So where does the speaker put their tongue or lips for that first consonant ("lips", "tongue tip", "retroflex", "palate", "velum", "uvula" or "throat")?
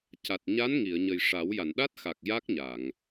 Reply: palate